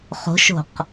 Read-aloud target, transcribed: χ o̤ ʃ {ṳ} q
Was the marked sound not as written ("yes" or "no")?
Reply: yes